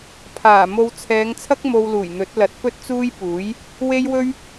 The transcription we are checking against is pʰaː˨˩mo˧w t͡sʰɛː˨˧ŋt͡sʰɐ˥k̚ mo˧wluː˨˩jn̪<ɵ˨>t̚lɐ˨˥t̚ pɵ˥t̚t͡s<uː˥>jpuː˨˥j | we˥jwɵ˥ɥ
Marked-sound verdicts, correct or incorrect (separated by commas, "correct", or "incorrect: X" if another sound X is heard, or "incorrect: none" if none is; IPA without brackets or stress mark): incorrect: ɵ˨˥, correct